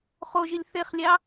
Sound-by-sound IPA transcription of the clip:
χoʒilʲ θeχlʲɑ

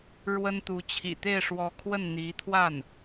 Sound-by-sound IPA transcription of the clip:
ɻwə˥nt̪u˧˥ t͡ɕʰḭ˨˩t̪e˥˩ɪ̯ʂwɔ˧˥kʰwə˥˩n n̪i˧˥t̪ʰwa˥˩n

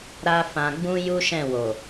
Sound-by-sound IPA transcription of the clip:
ɾa˦fã˧ ɡ͡bũ˦ju˦ʃɛ̃˦˨wo˨

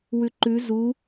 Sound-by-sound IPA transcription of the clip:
wʉǃʉ zu

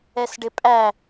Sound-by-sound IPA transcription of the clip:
ɛsɖɪpʼæ

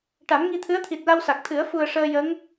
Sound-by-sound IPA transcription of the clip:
ʈa˨˩˦mŋi˧t̪ʰɨ˧˥ə̯ t̪ʰi˨˩t̚la˧w sa˨˩k̚ t̪ʰɨ˨˩˦ə̯ fu˨˩ə̯ ʂəː˧jə˧˥ŋ

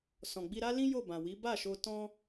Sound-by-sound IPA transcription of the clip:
sɔ̃˨ɡ͡bi˧ ɾa˦lĩ˦ jo˦˨bã˨wi˨˦ ba˦˨ʃo˧ tɔ̃˦

